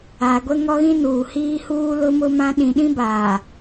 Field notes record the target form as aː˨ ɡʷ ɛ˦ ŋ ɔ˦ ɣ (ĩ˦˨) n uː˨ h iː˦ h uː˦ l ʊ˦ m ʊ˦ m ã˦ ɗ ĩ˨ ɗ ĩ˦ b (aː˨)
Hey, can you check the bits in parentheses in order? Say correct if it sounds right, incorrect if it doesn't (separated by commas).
incorrect, correct